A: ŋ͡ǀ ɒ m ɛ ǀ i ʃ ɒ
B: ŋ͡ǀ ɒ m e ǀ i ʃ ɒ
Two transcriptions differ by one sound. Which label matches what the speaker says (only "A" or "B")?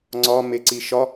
B